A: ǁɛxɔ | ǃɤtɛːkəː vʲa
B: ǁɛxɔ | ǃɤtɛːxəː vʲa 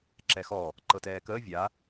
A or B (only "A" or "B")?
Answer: A